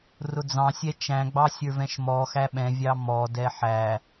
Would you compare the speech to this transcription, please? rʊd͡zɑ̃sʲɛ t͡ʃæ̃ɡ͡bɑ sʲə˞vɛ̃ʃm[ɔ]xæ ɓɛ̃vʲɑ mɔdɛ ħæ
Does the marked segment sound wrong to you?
no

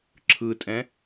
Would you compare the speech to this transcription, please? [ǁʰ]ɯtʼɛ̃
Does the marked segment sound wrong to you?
no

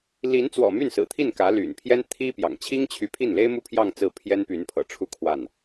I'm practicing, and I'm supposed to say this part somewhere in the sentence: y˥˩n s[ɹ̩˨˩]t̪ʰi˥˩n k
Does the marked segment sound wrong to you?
no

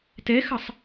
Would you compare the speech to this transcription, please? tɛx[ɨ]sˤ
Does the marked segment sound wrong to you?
yes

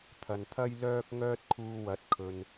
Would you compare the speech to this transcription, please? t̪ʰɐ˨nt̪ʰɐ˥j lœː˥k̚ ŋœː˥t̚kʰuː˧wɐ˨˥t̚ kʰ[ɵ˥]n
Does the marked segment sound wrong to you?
yes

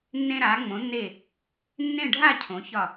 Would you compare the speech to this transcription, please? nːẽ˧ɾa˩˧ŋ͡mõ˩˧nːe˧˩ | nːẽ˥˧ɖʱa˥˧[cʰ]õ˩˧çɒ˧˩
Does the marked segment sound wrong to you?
no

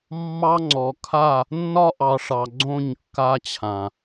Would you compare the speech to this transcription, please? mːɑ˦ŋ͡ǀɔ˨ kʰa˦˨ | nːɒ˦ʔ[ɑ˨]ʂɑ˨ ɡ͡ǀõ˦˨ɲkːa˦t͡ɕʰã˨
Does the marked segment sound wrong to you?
no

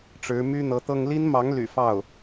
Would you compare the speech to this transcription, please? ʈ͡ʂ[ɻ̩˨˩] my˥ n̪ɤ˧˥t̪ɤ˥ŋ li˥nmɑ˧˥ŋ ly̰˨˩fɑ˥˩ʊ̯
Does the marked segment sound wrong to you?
yes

